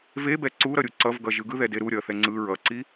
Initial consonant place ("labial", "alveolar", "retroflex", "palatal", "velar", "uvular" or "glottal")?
labial